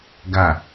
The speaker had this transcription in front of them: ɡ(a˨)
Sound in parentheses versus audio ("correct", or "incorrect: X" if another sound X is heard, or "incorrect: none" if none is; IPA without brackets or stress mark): correct